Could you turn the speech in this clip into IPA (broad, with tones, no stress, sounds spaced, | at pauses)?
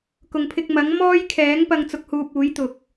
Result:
k ʊ˨ ŋ pʰ ɪ˧ k̚ m ɐ˨˥ ŋ m ɔː˥ j kʰ ɛː˨˥ ŋ p ɐ˧ ŋ t͡s ʊ˧ k̚ h uː˧ p̚ uː˨˥ j t̪ ʊ˨ k̚